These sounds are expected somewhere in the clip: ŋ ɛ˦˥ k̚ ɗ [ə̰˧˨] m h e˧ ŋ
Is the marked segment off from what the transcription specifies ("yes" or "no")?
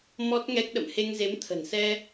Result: no